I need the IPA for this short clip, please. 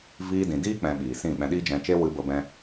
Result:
v iː˧ d ĩ˨ d iː˦ k͡p ɛ̃˧ ɓ iː˨ s ĩ˦˨ ɓ ɛ̃˧ ɗ iː˦ d͡ʒ ɛ̃˧ t͡ʃ e˦ w ɨ˧ b ə˧ b ɛ̃˧

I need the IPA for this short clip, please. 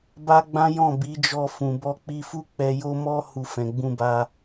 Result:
b a˦ ɡ͡b ã˦ j ɔ̃˦˨ b i˨˦ d͡ʒ ɔ˧ f ũ˨ b ɔ˧ k͡p i˧ f u˦ k͡p ɛ˧ j o˦ m ɔ˦ h u˧ f ɛ̃˨ ɡ͡b ũ˧ b a˧

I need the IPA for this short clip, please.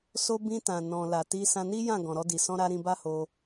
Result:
s o˧ b ĩ˧ t ã˨ n ɔ̃˨ l a˨ t i˧ s ã˧ n i˦ j ã˦˨ ɡ ɔ̃˨ ɾ ɔ˧ d i˨ s ɔ̃˧ ɾ a˧ ɾ ĩ˧ b a˦ h o˧

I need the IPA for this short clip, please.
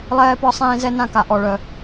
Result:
lˠ ɛː˧ p ɒ˧ sˤ ẽː˧ z ɛ˧ n ã˧ k a˩ ʔ ɔ˩ ɭ œ˩

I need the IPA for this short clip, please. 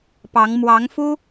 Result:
p ɑ˧˥ ŋ m w ɑ˧˥ ŋ f u˥

